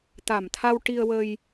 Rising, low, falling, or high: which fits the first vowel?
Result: low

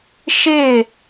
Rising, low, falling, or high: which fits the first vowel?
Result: falling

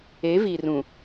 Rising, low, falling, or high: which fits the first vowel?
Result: rising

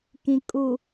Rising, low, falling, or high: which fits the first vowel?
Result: low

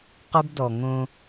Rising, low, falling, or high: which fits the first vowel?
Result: high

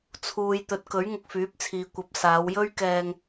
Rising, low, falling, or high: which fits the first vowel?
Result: low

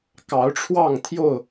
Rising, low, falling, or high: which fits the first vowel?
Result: rising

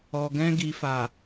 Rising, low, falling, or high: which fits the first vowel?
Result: low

